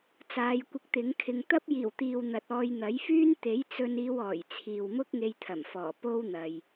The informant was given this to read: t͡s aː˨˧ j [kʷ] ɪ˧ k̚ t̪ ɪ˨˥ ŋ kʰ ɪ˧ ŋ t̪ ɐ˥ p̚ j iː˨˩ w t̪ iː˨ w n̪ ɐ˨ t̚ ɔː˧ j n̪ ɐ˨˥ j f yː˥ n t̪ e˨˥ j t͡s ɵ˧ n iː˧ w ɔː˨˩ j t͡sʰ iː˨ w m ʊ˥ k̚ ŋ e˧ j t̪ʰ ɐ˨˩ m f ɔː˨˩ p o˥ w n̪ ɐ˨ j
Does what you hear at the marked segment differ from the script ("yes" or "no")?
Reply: no